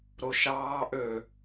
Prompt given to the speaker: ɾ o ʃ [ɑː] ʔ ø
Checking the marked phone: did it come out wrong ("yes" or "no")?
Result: no